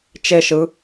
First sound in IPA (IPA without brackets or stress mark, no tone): t͡ʃ